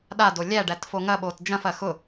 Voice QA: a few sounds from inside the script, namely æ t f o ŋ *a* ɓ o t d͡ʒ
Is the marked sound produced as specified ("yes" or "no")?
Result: no